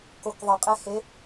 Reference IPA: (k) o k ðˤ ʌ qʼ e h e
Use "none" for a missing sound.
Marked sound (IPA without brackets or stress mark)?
k